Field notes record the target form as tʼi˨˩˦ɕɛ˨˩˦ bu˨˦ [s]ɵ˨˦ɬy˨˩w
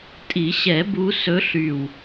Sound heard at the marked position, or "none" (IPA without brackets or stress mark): s